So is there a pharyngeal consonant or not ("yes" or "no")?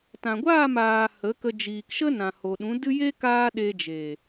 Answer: no